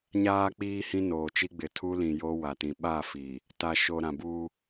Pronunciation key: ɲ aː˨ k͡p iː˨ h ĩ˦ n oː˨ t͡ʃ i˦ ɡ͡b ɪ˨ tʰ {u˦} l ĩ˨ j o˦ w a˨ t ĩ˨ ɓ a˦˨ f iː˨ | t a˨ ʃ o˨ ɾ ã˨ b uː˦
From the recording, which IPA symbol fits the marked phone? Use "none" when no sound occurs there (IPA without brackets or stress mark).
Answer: u˦